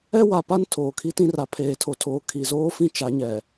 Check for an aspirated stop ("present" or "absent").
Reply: present